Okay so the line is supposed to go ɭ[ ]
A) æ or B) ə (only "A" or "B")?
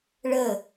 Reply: B